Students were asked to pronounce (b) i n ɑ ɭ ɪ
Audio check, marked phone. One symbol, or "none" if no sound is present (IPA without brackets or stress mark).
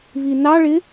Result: β